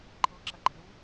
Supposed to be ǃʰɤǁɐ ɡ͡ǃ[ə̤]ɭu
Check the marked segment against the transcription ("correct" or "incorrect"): incorrect